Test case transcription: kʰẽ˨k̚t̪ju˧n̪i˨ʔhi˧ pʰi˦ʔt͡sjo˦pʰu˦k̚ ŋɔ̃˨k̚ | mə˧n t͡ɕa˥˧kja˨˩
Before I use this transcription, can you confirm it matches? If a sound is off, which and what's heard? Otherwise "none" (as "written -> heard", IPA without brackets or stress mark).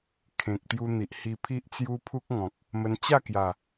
o˦ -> u˦